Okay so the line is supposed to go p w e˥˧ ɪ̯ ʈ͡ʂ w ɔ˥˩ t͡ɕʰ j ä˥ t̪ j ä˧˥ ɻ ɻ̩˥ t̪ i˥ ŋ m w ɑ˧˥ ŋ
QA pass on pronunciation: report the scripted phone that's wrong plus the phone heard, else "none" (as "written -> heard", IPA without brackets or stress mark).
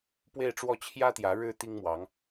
none